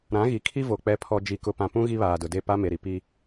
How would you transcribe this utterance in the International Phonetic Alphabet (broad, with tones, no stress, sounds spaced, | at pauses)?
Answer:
ɾ ã˨˦ ɣ i˨ kʰ i˦ v o˨ k͡p ɛ˨ pʰ ɔ˨ d͡ʒ i˨ k ʊ˨ p ã˨ p ũ˦ ɣ i˦ β aː˨ d ʊ˨ d e˦˨ p a˦ m e˨ ɾ i˨ p i˦